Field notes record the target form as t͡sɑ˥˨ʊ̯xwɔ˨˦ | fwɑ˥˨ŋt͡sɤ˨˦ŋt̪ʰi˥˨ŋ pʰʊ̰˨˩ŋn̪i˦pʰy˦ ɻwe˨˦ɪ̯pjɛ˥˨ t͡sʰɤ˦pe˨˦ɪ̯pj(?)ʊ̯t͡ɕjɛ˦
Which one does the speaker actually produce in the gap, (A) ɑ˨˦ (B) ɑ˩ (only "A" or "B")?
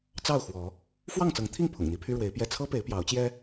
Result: A